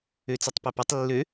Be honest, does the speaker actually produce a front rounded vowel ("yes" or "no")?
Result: yes